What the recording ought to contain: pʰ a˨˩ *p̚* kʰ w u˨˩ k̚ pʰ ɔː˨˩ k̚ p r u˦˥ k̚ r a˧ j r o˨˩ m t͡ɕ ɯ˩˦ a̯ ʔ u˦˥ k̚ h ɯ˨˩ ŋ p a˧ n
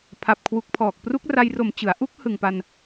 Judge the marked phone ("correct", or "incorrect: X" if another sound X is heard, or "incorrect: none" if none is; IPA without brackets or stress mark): correct